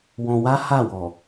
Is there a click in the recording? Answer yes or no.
no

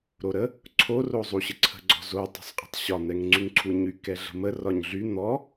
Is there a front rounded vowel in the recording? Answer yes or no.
yes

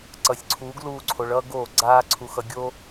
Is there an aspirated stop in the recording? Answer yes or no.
yes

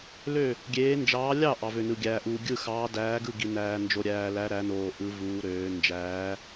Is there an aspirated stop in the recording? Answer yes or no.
no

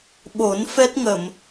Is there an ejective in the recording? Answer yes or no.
no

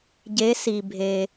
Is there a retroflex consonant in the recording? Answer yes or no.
no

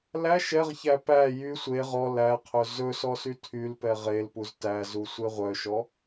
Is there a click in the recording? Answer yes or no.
no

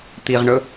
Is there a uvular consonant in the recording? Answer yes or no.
yes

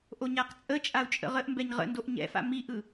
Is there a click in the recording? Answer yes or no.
no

